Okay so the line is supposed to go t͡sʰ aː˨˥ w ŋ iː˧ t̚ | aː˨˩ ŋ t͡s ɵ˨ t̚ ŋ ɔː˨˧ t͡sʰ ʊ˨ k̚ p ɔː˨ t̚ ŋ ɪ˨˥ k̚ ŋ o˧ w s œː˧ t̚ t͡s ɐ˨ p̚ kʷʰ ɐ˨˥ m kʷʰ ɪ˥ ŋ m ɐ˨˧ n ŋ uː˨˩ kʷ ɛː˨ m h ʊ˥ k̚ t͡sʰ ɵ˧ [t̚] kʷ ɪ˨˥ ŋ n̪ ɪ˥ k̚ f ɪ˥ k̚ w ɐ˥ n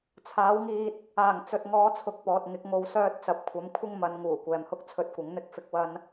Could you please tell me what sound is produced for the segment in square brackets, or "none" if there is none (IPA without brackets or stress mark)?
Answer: t̚